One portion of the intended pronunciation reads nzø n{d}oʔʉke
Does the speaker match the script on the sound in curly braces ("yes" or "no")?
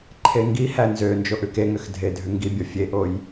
no